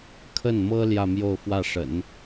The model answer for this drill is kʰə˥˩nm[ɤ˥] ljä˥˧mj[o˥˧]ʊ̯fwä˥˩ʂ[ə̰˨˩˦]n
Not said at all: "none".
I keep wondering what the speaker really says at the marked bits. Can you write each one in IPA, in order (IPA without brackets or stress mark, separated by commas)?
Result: ɤ˥, o˥˧, ə̰˨˩˦